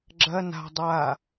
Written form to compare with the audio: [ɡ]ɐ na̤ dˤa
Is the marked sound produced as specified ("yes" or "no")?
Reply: no